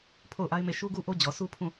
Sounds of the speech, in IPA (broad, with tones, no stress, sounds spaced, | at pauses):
pʰ o˦˨ ʊ̯ ʔ a˦ ɪ̯ m e˦˨ ʃ u˦ ɡ u˦ ʔ o˦ d͡ʑ ɔ˨ sʰ u˦ pʰ ũ˦˨